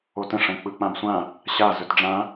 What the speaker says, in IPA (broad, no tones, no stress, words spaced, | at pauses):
otə̃ ʂə̃ k͡pɯk͡pãbsʷã | ɕa zɵtɖ͡ʐã